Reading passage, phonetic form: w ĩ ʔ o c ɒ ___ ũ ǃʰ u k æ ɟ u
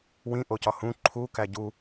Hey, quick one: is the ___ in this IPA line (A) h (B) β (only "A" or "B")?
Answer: A